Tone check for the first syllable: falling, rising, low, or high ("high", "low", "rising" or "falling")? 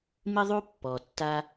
high